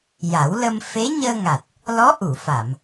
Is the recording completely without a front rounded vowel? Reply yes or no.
yes